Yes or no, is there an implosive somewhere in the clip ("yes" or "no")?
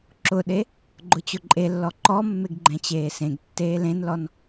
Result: yes